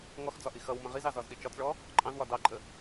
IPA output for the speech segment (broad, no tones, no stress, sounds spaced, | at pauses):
ŋ ɔ x d͡z ɒ ʔ i x ʌ w m ə̃ ʁ i z ɑ z ɒ z ɗ i t͡ʃ ɒ t͡s ɭ ɔ | ǃʼ ɑ̃ z w ɒ d ɑ ǃʼ ə